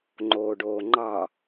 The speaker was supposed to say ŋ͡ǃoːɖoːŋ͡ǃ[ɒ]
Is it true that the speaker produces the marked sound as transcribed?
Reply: no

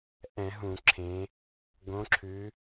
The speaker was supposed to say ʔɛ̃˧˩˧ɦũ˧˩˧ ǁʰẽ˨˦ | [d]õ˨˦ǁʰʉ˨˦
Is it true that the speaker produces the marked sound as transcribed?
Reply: no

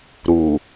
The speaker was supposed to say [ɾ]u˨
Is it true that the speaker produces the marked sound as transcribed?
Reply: yes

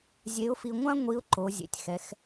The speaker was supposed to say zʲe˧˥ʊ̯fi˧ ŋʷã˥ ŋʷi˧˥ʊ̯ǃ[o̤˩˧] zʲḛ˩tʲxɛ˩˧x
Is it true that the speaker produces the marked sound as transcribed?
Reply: no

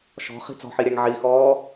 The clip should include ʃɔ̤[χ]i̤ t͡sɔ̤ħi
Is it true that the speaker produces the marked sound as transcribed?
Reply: yes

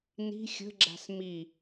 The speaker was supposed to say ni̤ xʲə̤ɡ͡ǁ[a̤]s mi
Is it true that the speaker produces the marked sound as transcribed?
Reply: yes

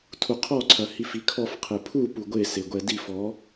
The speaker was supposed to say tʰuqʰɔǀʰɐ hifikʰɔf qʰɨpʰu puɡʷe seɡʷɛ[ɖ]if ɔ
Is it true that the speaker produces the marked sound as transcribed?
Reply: no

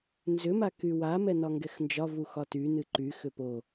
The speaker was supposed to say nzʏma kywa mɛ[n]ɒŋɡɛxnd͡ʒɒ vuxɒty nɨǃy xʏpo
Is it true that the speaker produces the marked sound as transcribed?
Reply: yes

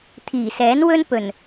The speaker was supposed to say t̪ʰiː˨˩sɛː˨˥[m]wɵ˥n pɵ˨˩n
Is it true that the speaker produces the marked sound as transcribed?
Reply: no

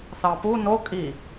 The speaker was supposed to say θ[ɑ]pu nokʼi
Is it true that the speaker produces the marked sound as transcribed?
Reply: yes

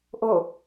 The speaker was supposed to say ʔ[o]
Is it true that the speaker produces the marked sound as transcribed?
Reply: yes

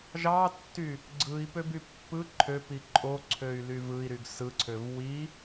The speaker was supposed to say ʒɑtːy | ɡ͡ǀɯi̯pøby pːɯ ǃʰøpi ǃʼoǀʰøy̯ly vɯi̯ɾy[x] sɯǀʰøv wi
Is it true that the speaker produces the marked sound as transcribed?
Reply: no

